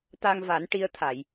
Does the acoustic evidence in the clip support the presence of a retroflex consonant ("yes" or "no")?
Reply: yes